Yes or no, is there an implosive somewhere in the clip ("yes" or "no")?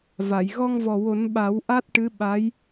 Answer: yes